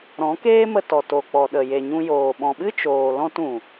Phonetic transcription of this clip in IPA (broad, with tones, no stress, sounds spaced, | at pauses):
ɾ ɔ̃˨˦ k eː˦ m ə˧ t ɔ˨ t o˨ k͡p ɔ˨ ɗ ə˨ j e˨ ɲ ũ˧ j oː˨ ɓ ɔ̃˨ ɓ ɨ˦ t͡ʃ oː˨ l ɔ̃˧ t ũ˨